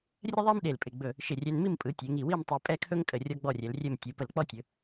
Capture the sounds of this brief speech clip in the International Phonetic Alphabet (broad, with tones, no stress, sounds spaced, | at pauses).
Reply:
rʲ ə˥ ðˤ e˥ m ɗ e˧˩ l pʼ ɪ˧˩ ɡ͡b ɵ˧˩ | ʃ ɪ˧˩ rʲ ɛ˧ n m i˥˧ m pʼ ɯ˩˧ tʲ e˩˧ ŋ i˧˩ w i˥˧ m tˤ i˧ pʼ ɛ˥˧ kʰ ɵ˥ ŋ kʼ ə˧˩ rʲ ɔ˥ ɡ͡b ɔ˥˧ rʲ ɛ˩˧ l rʲ ɛ˥˧ m tʲ ɯ˩˧ p ə˧˩ l k͡p ɔ˥ tʲ ɵ˩˧